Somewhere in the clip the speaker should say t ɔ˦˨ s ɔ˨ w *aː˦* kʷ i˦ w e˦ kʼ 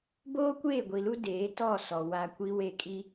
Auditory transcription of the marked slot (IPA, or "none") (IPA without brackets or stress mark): a˦